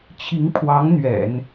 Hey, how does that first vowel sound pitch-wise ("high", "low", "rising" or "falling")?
rising